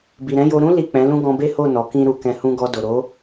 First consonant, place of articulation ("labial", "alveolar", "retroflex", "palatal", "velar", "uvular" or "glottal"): labial